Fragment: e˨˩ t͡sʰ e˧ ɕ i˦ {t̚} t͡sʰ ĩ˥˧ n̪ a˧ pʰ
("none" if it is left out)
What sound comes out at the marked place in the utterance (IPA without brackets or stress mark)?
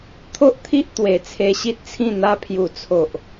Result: t̚